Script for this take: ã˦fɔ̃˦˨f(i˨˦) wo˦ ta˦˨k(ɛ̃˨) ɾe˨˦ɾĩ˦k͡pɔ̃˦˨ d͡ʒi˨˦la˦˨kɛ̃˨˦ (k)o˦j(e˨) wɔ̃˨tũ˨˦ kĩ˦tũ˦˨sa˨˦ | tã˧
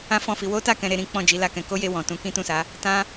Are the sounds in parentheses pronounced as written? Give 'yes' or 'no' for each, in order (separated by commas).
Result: yes, yes, yes, no